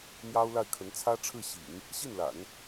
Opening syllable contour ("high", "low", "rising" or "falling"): high